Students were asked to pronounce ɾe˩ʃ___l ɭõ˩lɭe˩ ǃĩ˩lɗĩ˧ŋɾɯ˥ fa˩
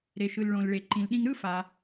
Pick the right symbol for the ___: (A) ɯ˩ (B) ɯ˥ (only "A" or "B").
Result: A